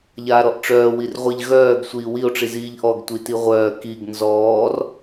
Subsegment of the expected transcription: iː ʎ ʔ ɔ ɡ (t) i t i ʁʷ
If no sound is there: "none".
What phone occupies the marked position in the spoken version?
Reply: tʷ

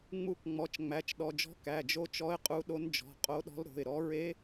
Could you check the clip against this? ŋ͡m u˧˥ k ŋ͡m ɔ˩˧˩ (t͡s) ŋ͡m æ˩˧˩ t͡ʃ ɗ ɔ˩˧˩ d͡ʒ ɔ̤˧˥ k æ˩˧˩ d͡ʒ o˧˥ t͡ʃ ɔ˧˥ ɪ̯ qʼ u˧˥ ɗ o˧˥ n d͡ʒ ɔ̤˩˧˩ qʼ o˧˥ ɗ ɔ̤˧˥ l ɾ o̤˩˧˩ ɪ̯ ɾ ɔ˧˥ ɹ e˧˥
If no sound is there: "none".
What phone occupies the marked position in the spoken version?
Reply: t͡ʃ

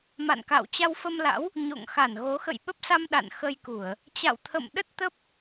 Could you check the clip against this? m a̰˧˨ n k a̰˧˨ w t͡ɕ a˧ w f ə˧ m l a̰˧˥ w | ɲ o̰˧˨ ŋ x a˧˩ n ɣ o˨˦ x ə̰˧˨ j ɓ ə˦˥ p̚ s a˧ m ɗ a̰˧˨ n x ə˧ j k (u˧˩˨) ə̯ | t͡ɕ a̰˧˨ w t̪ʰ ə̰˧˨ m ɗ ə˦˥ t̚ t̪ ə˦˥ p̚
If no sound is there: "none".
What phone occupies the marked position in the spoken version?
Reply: u˧˩˨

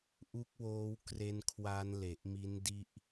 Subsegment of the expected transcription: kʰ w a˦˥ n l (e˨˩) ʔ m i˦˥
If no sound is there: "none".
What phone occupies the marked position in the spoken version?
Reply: e˨˩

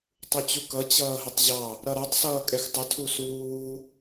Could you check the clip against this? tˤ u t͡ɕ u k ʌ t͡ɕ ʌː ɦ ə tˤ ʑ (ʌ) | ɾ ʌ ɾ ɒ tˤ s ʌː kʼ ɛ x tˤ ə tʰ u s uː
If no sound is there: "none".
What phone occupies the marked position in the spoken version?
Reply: ɑ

